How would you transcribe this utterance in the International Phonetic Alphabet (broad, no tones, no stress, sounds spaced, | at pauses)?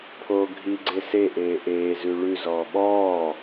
pʰ oː ɡʱ i ɡ͡ǀ e s e ʔ eː ʔ eː z ʉ ɭ ʉ z ɔː ɓ ɔː